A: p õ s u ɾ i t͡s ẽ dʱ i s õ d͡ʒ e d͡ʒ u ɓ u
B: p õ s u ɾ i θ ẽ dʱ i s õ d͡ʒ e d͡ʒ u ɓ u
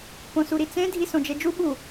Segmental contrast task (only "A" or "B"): A